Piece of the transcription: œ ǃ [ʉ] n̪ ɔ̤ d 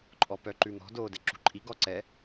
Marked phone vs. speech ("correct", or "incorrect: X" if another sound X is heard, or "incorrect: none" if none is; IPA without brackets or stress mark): correct